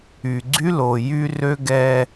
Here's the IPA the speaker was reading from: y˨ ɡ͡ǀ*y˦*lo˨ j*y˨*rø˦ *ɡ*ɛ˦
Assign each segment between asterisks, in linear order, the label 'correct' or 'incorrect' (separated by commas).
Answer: correct, incorrect, correct